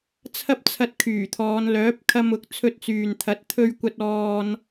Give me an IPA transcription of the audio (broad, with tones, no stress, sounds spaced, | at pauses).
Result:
t͡sʰ ɐ˥ p̚ t͡sʰ ɐ˧ t̚ kʰ yː˨˩ t̪ʰ ɔː˨˧ n l œː˨˥ p̚ kʰ ɐ˧ m ʊ˨˥ k̚ t͡sʰ ɵ˧ t̚ t͡s yː˨ n t̪ʰ ɐ˨˥ t̚ t̪ʰ ɵ˧ ɥ kʷ ɐ˧ t̚ ɔː˧ n